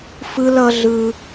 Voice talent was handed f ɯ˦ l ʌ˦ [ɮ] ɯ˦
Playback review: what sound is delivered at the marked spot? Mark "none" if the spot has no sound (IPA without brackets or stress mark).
ɮ